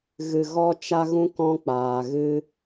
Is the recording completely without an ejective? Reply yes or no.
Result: yes